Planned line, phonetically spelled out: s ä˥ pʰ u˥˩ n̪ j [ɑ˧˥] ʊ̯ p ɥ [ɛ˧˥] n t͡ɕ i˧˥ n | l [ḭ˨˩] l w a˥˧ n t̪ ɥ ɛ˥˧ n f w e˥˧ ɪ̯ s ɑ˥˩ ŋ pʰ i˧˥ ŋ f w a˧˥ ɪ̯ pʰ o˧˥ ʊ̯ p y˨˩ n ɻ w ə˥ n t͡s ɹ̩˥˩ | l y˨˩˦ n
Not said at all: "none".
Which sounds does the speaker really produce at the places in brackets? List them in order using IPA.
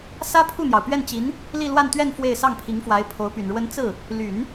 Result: ɑ˩, ɛ˥˩, i˥˧

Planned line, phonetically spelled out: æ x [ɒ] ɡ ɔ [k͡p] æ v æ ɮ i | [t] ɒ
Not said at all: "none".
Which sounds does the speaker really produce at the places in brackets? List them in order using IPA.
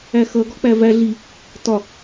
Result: ʌ, k͡p, t

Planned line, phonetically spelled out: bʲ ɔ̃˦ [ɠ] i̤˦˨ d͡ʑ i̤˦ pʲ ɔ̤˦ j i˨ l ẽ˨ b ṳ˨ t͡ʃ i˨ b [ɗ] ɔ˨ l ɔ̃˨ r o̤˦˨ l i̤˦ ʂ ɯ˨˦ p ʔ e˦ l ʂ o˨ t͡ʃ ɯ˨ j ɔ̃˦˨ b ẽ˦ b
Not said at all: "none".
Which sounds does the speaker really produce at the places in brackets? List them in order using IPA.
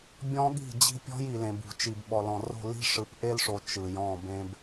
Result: ɠ, ɓ

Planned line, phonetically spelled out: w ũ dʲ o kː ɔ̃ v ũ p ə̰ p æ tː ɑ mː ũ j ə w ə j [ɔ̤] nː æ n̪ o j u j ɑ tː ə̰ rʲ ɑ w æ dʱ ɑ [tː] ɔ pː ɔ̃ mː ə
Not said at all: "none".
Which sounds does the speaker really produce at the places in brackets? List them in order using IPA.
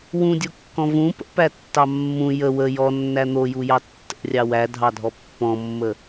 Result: ɔ, dʱ

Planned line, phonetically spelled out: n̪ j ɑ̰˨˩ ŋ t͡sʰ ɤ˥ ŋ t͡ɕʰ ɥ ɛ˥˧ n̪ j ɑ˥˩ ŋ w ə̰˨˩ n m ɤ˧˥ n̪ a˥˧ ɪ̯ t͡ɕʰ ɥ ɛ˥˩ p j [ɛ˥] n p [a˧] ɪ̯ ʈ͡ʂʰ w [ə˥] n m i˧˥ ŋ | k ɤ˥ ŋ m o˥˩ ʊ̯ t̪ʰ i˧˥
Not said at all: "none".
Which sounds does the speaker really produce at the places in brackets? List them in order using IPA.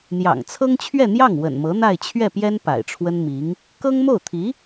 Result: ɛ˥, a̰˨˩, ə˥

